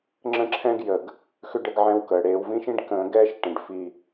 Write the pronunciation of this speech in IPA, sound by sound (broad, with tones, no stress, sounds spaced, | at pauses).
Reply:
ŋ͡ǁ ə̃˦ ǁʰ ɛ̃˦ ɡ j əː˨ ɡ | x ʉ˦ ɖ ə˦ ɡ ʕ ɛ̃˦ w k əː˨ ɽ eː˦ w v ĩ˦ ʃ ĩ˦ ɖ k ə̃ː˦ ɡ ɛː˦ ʃ ʈ ə̃˨ ɖ f i˦